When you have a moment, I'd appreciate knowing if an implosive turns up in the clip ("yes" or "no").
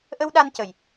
yes